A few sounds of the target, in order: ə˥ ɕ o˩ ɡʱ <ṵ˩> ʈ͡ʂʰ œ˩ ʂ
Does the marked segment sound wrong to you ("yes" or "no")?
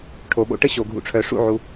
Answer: no